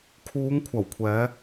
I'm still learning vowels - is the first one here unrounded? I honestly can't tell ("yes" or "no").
no